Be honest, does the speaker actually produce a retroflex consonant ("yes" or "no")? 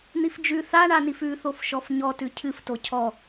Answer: yes